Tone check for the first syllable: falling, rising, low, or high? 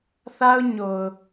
high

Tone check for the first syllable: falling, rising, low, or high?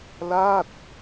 falling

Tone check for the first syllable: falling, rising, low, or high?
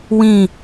falling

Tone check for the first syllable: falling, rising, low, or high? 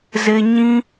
high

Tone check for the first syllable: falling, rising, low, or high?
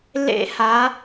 high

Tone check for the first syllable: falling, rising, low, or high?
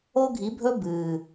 high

